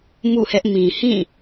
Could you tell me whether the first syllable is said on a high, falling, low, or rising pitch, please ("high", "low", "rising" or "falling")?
falling